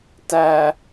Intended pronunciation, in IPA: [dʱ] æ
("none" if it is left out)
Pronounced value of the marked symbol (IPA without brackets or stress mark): t